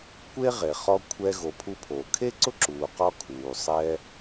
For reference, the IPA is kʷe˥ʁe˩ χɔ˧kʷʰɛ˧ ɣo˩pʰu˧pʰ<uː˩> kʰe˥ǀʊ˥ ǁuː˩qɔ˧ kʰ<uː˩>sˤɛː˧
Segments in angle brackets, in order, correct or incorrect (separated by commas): incorrect, correct